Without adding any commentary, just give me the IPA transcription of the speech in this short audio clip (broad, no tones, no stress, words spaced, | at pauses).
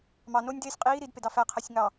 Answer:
mɑ nonʲdeːsʲ qʼiː ɾidpedɑ fæqʰæsʲ ŋɑ